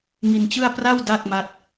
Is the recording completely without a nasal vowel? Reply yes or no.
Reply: yes